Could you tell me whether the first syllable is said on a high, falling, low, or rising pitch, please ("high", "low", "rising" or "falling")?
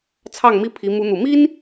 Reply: falling